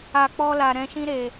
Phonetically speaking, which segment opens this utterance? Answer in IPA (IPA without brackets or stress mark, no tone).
a